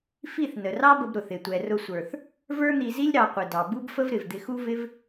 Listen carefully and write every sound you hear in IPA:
fi˦˨θnə˨rɑ˦bə˧b ɾʊ˨θɪ˨ tʷɛ˨rʊ˧sʷə˞˨θ | və˞˦n̪i˧zi˦lʲ ɾɑ˧qʷɪ˨dɑ˨ bu˦bfə˦vɾɪ˨vd̪ɪ˧ xu˦vɪ˦v

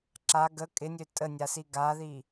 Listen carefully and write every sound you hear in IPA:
ǁa ɡə kʼɪnʲø tʼənʲasi ɡaði

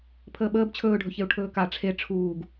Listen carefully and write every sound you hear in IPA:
pʰəːɓəːb t͡ɕʰɵːɖʱɵçeu̯ ʈʰɵːka ʈ͡ʂʰe ʈ͡ʂʰuːɡ

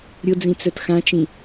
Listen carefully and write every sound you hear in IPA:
ɾʲʊd͡zĩt͡sœt xãt͡ʃĩ

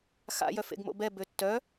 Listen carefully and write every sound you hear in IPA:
xa̰jœ fḛɡmo̰bɛbø tːœ

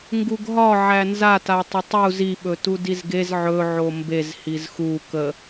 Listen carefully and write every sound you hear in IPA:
ŋɡuɡɦɒ ʕænzata tˤətˤu ziɓɵ tudizɡez ʕɵʕo mbez hizxu kə

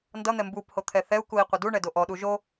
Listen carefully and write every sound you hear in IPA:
ndʌn̪ɛ mbup hot̪ʰɛθɛu̯kui̯ qʷʌduɳɛ doʔɔɗu ʒo

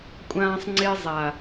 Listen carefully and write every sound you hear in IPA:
kʷʼãː˦sˤŋ͡ǀe˦zˤa˨

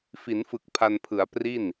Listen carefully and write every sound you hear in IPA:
fi˩˦nfɯ˨˩k̚ pʰa˧n pʰɯ˩˦a̯ pri˥˩n

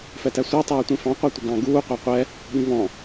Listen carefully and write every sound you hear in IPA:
fɛtæsʷɜ tˤɛːtʷĩfɑ̃ qʷætʷɪɡɑ̃ ɡuː qʷæqʷɛ | ɠĩvɔ̃

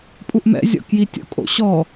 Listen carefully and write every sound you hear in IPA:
pʼuʔmɛ̰zʲɔ̰ kjitʲo̰kʼo̰ ɕɔ

